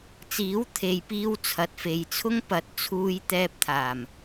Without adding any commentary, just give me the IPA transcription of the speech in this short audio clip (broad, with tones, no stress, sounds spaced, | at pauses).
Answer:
t͡s iː˨˥ w t̪ʰ e˨ j p iː˧ w t͡sʰ ɐ˨ t̚ f e˨ j t͡sʰ ʊ˥ ŋ p ɐ˨˥ t̚ t͡sʰ uː˧ j t̪ ɛː˧ p̚ t̪ʰ aː˨˩ m